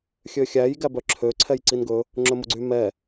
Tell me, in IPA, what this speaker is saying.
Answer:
xʲ ø xʲ æ j ɡ æ b œ ǁʰ ø ǀʰ ɛ j ǀ i n ɡ ɵ | ŋ͡ǁ ɵ m u ɡ͡ǀ y m ɛ

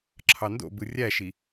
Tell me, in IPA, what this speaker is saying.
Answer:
ǁʰ ɑ n d o̰ b ɯ rʲ æ ʃ i

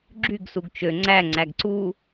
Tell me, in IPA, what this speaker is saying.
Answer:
ɡ͡ǁ y ɡ s u ɡ t͡ʃ ø ŋ͡ǀ æ ŋ͡ǀ æ ɡ ǀ u

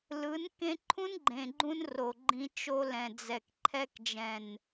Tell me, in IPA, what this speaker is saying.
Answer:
l ɯ˨˦ n k ẽ˦ ǃʰ ũ˦ n ɡ͡ǃ ẽ˨ ɡ͡ǃ ũ˧ n r o˨ ɡ͡ǃ ĩ˧ t͡ʃ o˧ l ɛ̃˨ d͡z ɛ˨ k ǃʰ ɛ˧ k d͡ʒ ɛ̃˨ n

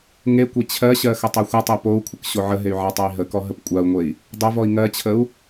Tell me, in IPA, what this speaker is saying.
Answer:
ŋ e kʷ e t͡ɕʰ ɜ ɕ ɜ x ə tˤ o xʷ ə tˤ e p o u̯ kʷʰ ə k ɕ o ʕ ə ɦ e y̯ ʕ a tˤ a i̯ ɦ ə k ɔ ɦ ə p kʷʼ a u̯ ŋʷ e i̯ | dˤ o v ɔ i̯ ŋ ɜ t͡ɕʰ ə u̯

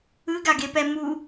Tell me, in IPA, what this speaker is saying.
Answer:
ɯ ɡ a ɡ e p ɛ m u

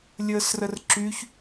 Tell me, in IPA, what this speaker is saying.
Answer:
lʲ əː s r ə r ǁ y ç

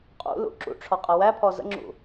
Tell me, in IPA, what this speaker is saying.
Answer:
qʼ ṵ l ṵ ǁ ṵ ʈ͡ʂʰ ɔ qʼ ɜ w æ pʰ ɔ z ə̰ ŋ͡ǁ ṵ

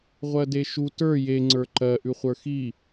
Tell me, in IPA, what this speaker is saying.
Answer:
ʁʷ ɜ d e ʃ u t ə˞ j e ŋ͡ǀ ə˞ ǃ ɜ ʔ ʉ χʷ ə˞ x i

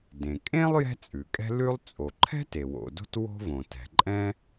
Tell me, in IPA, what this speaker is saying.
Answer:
d ẽ˩ kʼ ẽ˥ lˠ j ɛ̤˥ t͡sʼ ʉ˩ kʼ ɛ̤˥ l ʉ˥ lˠ t͡sʼ o˩ ǃʰ ɛ̤˥ t e˩ w o̰˩ d o̤˥ t w o̤˥ v õ˩ t ɛ̤˩ ǃʼ ɛ̃˥

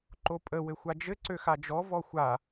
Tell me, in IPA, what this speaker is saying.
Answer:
ǃ o pʼ ə w ɘ xʷ a d͡ʒ ɘ ǀ ø x a d͡ʒ ɔ v ɔ xʷ a

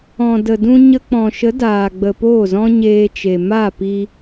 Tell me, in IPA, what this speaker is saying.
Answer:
ɔ̃˨ d ə˨ d ũ˧ ɲ ə˧ k͡p ɔ̃˨ ʃ ə˨˦ d aː˨ ɡ͡b ə˨ p oː˦˨ z ɔ̃˦ ɲ eː˧ t͡ʃ e˨ m a˦˨ p i˧

